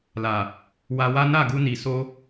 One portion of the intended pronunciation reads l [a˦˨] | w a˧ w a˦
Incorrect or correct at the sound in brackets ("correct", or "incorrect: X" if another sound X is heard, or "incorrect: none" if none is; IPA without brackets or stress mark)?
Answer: incorrect: a˨